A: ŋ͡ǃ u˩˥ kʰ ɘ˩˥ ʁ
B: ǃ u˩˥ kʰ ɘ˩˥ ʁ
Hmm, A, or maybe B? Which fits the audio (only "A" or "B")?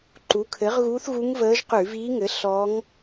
B